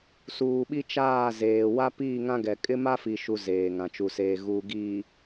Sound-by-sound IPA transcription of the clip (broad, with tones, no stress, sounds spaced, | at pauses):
s uː˨ ɓ i˦ t͡ʃ aː˦˨ z eː˨ w a˦ p iː˦˨ ŋ ã˦ ɡ ɛ˨ kʼ ɪ˦ m a˦ f i˨ ʃ u˦ z eː˨ ŋ ã˨ t͡ʃ u˨ s eː˨ ɣ uː˨ ɡ iː˨